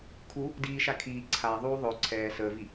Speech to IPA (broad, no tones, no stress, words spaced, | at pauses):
kʰu | diːʃa kʰiː ǀʰaðˤuː ðˤɵ ǀʰɛː səːvi